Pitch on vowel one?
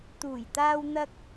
low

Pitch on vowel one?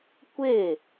falling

